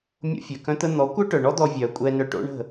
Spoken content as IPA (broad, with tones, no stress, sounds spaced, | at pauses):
mʲ o̰˧ fʲ œ˨ k œ̃˧ t̪ ə˧ n̪ ɔ˨˦ kʷ œ˦ ʈ œ˨ ɳ ɔ˦ d̪ ɔ˧ vʲ œː˨ kʷʼ ɛ˧ n œ˧ ʈ o̰˦ ɳ ə̤˦˨